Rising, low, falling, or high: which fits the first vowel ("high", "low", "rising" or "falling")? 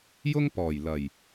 high